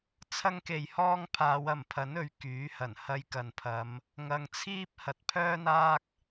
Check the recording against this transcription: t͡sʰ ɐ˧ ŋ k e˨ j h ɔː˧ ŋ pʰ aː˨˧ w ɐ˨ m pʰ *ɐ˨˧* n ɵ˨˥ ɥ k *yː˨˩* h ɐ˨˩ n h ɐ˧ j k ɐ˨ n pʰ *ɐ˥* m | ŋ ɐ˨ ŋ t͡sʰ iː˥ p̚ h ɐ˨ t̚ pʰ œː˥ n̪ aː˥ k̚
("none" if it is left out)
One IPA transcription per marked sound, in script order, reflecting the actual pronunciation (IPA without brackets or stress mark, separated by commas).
ɐ˨˥, yː˨˥, ɐ˨˧